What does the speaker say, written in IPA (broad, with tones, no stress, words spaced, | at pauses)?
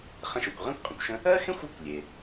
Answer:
χə̃˦ʃo˨kʷ ʁẽ˥kʷqʼə̃˨kʷʃə̃˦ | ɜ˥xẽ˥xʷo˦kʷlʲe˩